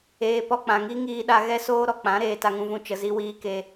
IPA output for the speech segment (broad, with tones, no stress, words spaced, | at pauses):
eː˧ pɔ˧k͡pã˨ ŋi˦ ŋiː˧ɗa˧ ɣɛ˦soː˦ ɾɔ˧k͡pã˨˦ ɾeː˧ta˧ŋũ˧vũ˧ t͡ʃə˨zi˧wiː˧ ke˧